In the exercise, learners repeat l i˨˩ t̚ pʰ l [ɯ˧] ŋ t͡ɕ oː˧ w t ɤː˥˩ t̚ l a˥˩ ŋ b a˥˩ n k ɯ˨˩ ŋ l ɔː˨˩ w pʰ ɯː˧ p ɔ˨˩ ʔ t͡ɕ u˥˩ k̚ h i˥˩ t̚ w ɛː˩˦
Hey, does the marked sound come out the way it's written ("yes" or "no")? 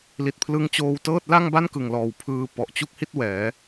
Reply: yes